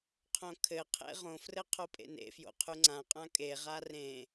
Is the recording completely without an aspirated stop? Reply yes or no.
no